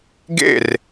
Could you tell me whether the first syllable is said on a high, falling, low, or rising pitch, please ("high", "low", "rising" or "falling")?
falling